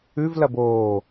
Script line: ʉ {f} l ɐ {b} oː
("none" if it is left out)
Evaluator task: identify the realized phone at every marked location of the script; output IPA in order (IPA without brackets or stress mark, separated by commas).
v, b